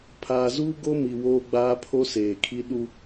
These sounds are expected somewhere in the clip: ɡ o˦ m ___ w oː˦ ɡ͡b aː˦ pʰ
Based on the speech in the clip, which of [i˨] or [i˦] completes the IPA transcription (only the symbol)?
i˨